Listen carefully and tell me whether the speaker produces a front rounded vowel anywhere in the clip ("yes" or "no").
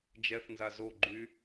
yes